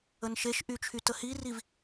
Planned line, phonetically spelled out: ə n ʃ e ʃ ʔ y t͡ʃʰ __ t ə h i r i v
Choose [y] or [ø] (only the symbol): y